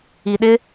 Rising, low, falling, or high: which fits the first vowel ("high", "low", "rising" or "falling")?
low